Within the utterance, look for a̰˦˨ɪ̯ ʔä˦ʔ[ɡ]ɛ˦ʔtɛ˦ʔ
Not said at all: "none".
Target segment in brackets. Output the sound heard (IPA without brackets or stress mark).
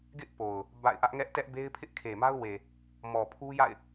ŋ